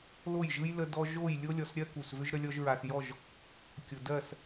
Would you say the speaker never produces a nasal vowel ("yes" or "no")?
yes